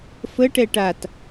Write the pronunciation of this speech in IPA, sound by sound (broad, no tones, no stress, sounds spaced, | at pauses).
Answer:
f ə ʈ ɛ ʈ a t